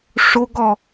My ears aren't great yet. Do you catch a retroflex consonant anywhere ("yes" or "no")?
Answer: yes